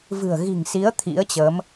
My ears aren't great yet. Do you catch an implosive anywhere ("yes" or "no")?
no